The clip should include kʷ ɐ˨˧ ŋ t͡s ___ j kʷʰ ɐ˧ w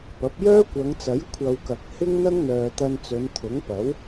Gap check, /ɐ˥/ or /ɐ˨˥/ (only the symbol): ɐ˨˥